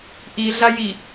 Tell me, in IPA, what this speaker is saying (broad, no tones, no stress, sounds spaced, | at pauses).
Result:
ʔ i ɮ a j i